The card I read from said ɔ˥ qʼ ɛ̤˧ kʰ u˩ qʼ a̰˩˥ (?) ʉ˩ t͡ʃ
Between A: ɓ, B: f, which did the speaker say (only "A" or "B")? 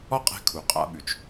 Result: A